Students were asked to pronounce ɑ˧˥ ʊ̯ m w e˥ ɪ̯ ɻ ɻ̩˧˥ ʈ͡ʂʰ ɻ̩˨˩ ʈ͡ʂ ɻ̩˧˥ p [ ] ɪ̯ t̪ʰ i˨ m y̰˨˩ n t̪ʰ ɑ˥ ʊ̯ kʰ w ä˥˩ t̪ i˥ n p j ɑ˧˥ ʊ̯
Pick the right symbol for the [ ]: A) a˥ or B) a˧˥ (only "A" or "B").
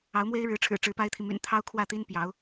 A